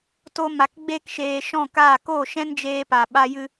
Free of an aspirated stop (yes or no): yes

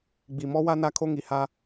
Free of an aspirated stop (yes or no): no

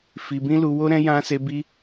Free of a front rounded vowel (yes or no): yes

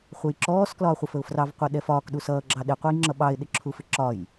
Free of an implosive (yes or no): no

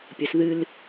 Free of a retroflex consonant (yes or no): yes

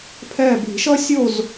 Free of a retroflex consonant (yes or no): yes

